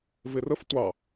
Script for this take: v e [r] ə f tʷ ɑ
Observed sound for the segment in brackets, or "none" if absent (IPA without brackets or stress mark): r